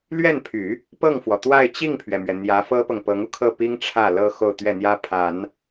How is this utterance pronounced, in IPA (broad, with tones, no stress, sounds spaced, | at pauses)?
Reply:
l ɥ ɛ˥˩ n pʰ y˨˩˦ | p ɤ˥˩ ŋ f w ɔ˩ t̪ w a˥˧ ɪ̯ t͡ɕ i˥˩ ŋ pʰ ɥ ɛ˩ m ɥ ɛ˩ n̪ j ä˧˥ f ɤ˥ p ɤ˨ ŋ p ɤ˧˥ ŋ u˧ kʰ ɤ˥˩ p i˥ ŋ ʈ͡ʂʰ ä˥˩ l ɤ˥ x o˥˧ ʊ̯ t̪ ɥ ɛ˥˩ n̪ j ä˥ pʰ a˨˩˦ n